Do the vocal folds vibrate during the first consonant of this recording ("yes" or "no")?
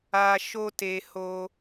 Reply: no